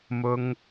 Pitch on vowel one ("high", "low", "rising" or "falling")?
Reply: high